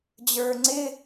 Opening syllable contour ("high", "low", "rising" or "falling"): low